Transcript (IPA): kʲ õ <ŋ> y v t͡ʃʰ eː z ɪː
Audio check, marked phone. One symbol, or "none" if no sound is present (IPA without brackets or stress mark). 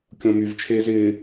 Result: m